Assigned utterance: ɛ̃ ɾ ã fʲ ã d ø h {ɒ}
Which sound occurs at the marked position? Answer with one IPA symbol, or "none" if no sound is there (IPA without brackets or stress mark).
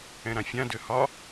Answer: ɒ